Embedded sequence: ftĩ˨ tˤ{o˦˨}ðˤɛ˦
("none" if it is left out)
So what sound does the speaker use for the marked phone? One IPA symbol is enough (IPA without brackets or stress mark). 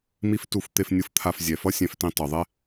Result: o˨